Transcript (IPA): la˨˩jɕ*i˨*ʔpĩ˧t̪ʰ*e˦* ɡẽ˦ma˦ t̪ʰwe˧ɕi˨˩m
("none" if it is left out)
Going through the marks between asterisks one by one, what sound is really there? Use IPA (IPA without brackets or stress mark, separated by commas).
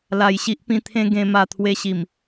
i˦, ẽ˦